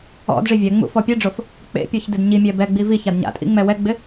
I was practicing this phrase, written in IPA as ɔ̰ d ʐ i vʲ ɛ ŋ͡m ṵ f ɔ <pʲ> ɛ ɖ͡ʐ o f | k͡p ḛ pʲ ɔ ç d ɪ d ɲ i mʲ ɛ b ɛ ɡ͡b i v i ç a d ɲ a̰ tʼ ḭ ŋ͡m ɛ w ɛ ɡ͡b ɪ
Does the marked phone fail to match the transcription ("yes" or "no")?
no